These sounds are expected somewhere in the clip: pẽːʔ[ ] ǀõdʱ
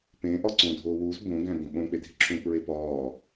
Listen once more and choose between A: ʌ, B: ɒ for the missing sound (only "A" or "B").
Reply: B